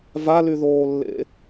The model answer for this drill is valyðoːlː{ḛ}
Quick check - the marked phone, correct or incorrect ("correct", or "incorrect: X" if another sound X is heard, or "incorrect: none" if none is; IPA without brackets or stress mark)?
correct